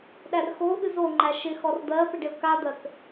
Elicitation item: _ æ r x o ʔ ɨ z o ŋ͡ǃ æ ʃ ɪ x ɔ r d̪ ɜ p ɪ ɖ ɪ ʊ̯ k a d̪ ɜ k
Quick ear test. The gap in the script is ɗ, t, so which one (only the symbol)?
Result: ɗ